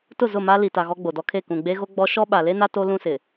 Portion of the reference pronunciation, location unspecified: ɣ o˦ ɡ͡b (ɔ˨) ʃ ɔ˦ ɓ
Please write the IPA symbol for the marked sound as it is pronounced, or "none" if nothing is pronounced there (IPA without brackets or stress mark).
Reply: ɔ˦